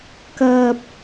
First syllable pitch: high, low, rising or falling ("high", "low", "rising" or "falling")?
high